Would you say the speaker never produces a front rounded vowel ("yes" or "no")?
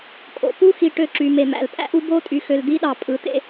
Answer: no